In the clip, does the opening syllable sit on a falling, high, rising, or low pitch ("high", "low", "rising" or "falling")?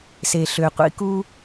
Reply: low